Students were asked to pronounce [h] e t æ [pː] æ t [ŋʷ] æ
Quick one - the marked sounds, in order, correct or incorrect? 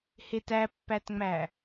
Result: correct, correct, incorrect: ŋ͡m

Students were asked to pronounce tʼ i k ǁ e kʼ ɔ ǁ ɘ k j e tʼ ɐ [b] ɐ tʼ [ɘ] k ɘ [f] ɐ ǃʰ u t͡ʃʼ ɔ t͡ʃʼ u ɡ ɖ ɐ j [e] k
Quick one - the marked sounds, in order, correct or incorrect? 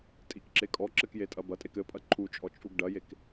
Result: correct, incorrect: e, incorrect: pʼ, correct

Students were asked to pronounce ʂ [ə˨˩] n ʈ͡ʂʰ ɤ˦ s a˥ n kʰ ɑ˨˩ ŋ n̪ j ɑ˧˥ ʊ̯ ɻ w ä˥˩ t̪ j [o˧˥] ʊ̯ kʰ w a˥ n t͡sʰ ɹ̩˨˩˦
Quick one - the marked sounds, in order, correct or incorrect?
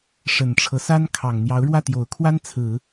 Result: correct, incorrect: o˨˩

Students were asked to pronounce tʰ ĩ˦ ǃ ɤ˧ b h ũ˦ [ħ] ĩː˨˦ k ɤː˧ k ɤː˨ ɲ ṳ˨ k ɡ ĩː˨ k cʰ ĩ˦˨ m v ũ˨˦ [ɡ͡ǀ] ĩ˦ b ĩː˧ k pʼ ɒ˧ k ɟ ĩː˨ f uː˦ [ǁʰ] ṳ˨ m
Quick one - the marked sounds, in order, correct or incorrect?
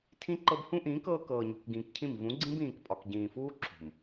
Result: incorrect: ʔ, correct, correct

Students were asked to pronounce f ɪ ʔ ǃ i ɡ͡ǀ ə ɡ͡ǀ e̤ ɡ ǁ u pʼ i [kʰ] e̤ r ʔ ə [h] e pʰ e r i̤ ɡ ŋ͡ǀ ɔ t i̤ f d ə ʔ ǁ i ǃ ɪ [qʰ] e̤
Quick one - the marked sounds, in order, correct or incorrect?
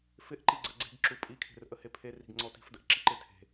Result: correct, correct, incorrect: tʰ

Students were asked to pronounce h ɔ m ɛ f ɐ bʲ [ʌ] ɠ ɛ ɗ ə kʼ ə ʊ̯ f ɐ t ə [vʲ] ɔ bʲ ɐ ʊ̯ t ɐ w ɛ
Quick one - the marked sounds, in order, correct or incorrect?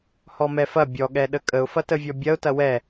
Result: incorrect: ɔ, correct

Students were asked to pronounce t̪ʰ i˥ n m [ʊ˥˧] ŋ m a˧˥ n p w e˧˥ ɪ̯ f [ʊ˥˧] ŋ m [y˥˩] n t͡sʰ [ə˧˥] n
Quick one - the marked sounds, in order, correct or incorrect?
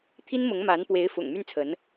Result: incorrect: ʊ˧˥, incorrect: ʊ̰˨˩, correct, correct

